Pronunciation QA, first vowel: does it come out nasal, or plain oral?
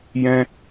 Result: nasal